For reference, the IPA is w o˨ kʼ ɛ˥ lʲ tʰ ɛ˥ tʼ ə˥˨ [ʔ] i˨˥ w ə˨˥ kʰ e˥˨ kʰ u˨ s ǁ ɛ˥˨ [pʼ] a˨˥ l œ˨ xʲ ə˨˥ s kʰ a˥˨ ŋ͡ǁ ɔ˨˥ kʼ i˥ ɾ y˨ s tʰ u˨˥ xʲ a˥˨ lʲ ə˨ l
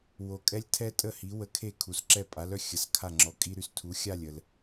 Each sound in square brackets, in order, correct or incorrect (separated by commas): incorrect, correct